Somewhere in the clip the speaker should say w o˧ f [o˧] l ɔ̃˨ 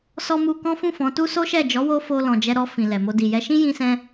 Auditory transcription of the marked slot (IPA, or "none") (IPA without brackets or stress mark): o˧